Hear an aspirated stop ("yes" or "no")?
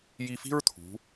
yes